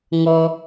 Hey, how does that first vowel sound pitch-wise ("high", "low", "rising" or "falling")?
low